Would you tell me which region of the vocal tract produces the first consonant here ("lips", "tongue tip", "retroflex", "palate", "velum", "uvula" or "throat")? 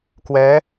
velum